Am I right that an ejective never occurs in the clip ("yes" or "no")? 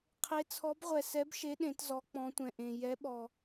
yes